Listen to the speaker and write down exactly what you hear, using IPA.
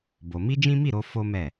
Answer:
b o˧ m i˦ d͡ʒ ĩ˦ m i˦˨ ɾ o˧ f o˦ m ɛ˦˨

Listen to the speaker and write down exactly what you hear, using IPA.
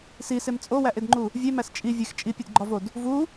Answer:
s i s e m t͡sʼ o w æ ʔ e d ŋ͡ǃ u | vʲ e m æ s t͡ʃʼ i vʲ e x t͡ʃʼ i pʲ e d ɡ͡ǃ ɒ v o d | v u

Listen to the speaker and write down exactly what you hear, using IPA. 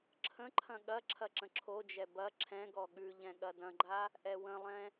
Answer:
ǁʰ ə̃ ǃʰ ɐ̃ ɠ ɐ ǁʰ ɐ ǁ ə̃ ǁʰ o d͡ʒ ɛ b ɐ ǁʰ ɛ̃ ɡ ɔ ɠ ʉ ʎ ɛ̃ ɠ ɐ d ɐ̃ ɡ͡ǃ a | ʔ ɛ w ə̃ lˠ ɛ̃

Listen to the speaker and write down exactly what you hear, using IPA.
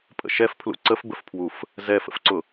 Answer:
pʼ ə̰ ʃ ɛ f pʰ l ṵ ǀ ə f b ə f pʰ w u f | z ɛ f ə̰ f ǀ ʊ

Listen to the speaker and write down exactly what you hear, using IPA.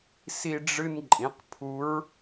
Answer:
s i˧ ɖ͡ʐ ɨ˧ n ǃʼ ĩ˩˧ q pʰ u˧˥ ɹ

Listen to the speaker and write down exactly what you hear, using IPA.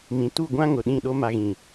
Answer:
m ĩ˨ t u˦˨ ɡʷ ã˦ ŋ ʊ˨ ɗ ĩ˦˨ ɗ o˦ m a˨ ɣ ĩ˨

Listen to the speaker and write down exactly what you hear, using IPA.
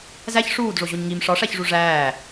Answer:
z æ ç ʂ uː d ʐ o ʑ o ɲ ŋ i m ʂ ɒ ʂ æ ç ʐ u ʐ æː

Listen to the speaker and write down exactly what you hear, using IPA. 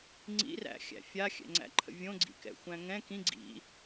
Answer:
ŋ͡ǀ ḭ r æ̰ xʲ æ̰ fʲ a xʲ ɛ̰ ŋ͡ǀ æ̰ ǃʰ ə̰ vʲ õ ɡ͡ǀ ḭ k ɛ̰ xʷ æ̃ ŋ ɛ̃ k ĩ ɡ͡ǀ ḭ

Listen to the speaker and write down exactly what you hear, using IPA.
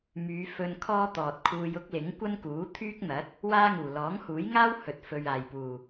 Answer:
m yː˨˧ f ɵ˧ n kʰ ɔː˥ t̪ ɔː˨ t̚ kʰ uː˧ j ʊ˥ k̚ l ɪ˨˥ ŋ kʷ ɐ˥ n k uː˨˥ t̪ʰ yː˥ k̚ n̪ ɐ˨˥ t̚ | w aː˥ ŋ uː˨˩ l ɔː˨˥ ŋ h uː˨˥ j ŋ aː˥ w h ɵ˨ t̚ f ɵ˨ ɥ aː˨˩ j p uː˨˩

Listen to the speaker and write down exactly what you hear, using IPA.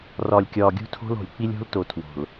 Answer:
r ɒ˨ lʲ kʲ ɒ˨ ɡʲ ṳ˦ tʰ o̤˦ l o̤˨ lʲ k͡p i˦ lʲ o̤˦ l t o˨ tʰ w o̤˨ l

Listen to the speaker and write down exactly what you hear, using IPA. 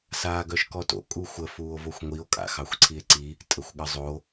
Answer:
s aː ɡ œ ʃ k ɔ t o̰ kʼ u xʷ ə f uː o̯ v o xʷ ŋʷ i o̯ kʼ a̰ x ɑ xʷ ǀʰ i e̯ ǀ i | tʼ ə xʷ ɠ ə zˤ o

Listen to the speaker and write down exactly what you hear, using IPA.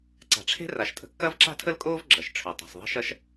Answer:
ǀ a̤˩ ʈ͡ʂʰ e̤˥ r a˩ ʃ tʼ ə̤˩ kː ɐ˥ v ǁ a̤˥ tʰ ə˥ l kʼ oː˥ v ɡ͡ǁ ɐ˩ ʃ ʈ͡ʂʰ ø˩ tˤ a̤˩ s ðˤ ə̤˥ ʃ ɐ˥ ʃ

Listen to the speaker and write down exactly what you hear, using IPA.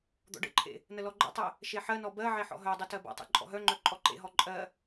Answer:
d̪ ɔ̰ ɖ ə̰ ǃʰ ḛ | n ə l ɔ ɡ͡ǃ ə̰ tˤ ɜ | ʃ e ħ ɜ n ɔ b ɜ ʕ e ħ ɔ̰ ɦ œ dˤ e t ɜ b ɔ̰ tˤ ḛ ǃʼ ɔ̰ ɦ œ ŋ͡ǃ œ ǃʼ ɔ ǃ ḛ ɦ ɔ ǃʼ ɜ

